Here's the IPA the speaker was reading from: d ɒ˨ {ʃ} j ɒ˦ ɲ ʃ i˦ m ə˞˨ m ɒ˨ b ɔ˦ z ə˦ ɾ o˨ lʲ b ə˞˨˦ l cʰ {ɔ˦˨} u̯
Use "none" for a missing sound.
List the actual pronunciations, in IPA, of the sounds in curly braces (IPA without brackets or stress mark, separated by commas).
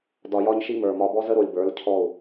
none, ɔ˦˨